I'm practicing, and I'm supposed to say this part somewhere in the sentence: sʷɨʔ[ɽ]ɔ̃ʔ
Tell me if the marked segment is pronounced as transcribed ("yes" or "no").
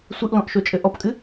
no